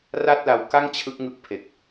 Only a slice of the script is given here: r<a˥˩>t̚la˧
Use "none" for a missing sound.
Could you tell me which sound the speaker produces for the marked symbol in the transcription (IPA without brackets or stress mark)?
a˥˩